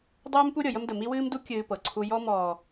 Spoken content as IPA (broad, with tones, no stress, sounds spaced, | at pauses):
dˤ uː˦ m p u˦ ɾʲ ɤ˨ j ə˦ m d ə˨ m i˦ w ɨː˦ m d u˦ kʲ ɨː˦ p ɤ˨ ǀʰ u˦ j ɔ˦ m ɔː˨